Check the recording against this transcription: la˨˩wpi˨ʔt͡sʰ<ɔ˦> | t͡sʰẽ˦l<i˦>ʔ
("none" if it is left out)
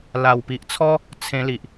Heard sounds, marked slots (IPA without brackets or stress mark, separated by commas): ɔ˦, i˨